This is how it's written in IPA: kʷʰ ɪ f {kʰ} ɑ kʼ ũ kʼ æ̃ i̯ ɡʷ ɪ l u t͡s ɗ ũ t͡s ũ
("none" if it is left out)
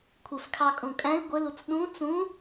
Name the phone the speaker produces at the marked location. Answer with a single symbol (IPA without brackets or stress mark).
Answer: kʰ